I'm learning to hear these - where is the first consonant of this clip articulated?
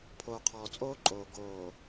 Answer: lips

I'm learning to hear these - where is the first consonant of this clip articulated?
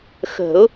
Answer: velum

